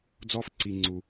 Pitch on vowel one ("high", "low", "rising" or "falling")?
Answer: high